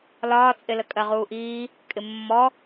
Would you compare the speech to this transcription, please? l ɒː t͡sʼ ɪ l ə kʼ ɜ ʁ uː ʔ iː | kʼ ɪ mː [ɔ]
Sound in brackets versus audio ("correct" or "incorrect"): correct